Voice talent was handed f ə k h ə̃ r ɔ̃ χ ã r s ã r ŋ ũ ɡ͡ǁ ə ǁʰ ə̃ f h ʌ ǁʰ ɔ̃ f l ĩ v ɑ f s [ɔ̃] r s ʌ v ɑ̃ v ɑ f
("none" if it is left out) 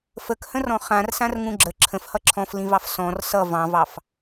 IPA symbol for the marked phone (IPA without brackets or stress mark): ɔ̃